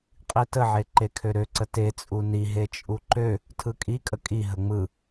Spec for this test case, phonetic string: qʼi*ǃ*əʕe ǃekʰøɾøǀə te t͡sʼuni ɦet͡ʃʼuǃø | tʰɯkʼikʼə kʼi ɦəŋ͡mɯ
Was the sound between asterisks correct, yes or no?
no